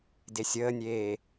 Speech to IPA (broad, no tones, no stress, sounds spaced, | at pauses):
d e sʲ əː nʲ eː